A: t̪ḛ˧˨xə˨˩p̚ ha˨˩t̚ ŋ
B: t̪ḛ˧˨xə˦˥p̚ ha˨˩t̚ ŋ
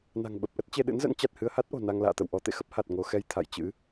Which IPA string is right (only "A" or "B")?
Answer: B